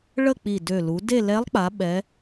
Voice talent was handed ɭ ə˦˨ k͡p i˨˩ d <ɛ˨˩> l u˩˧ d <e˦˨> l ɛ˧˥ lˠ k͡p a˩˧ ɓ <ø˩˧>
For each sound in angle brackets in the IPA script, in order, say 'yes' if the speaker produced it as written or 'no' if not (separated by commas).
no, yes, no